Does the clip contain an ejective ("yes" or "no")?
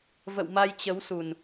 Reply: no